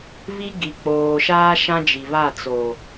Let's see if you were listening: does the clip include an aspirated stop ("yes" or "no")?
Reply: no